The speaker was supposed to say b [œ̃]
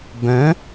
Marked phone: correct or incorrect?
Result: correct